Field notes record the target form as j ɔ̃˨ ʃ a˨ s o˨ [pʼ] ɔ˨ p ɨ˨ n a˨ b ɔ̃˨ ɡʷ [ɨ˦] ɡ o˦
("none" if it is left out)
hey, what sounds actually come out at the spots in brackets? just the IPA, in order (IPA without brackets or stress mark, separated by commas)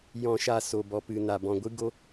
b, ɨ˦